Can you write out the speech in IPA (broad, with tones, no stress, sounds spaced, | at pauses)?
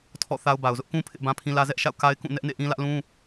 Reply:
tʰ ɔ̰˦˨ θ a˦ ʊ̯ b a˨ ʊ̯ z ʊ˦ ʔ k ũ˦ pʰ ɪ˦ ʔ b ã˦ pʰ ĩ˦ l ä˦ z ɛ˦ ʔ ʃ a̰˦˨ ʊ̯ k a˦ ɪ̯ k ũ˦˨ n ɛ˦ ʔ n ḛ˦˨ ʔ ĩ˦ l ä˦ ʔ l ũ˦